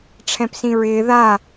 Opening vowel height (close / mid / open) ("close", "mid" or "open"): mid